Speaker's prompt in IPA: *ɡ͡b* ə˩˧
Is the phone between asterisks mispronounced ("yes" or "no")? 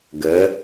yes